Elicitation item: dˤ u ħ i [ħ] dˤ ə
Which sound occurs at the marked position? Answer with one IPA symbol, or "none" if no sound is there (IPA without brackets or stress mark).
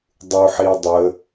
none